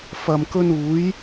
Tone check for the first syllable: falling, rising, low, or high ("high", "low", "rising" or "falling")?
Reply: low